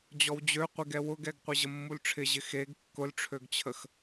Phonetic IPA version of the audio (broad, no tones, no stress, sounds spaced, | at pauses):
d͡ʑ ɔ w d͡ʑ ø qʷ ɪ ɡ ɛ w ʊ ɡ ɛ ɡ qʷ ɪ ʑ ə mː u l ʈ͡ʂʰ ɪ ʑ ɪ x e ɡ kː ʊ l ʈ͡ʂʰ ø ɡ t͡ɕʰ ə x